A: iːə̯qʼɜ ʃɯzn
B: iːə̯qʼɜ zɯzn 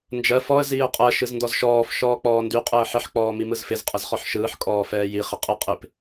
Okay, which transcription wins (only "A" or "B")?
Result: A